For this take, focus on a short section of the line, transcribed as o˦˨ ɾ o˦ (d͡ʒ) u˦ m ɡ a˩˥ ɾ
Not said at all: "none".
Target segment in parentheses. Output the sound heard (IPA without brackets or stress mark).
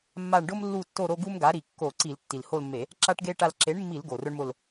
ɡ